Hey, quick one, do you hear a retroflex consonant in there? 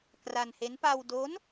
no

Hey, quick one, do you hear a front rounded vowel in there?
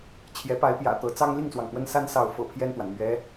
no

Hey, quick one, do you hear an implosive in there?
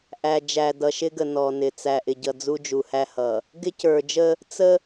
no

